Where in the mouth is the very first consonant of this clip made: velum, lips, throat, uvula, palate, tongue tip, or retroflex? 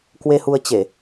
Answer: velum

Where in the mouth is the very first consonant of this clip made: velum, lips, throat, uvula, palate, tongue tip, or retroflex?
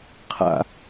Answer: uvula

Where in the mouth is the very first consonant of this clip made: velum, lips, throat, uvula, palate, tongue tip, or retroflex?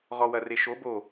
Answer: uvula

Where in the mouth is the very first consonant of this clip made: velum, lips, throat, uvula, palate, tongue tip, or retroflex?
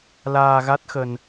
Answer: tongue tip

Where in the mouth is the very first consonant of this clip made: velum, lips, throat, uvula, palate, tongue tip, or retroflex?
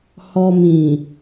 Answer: throat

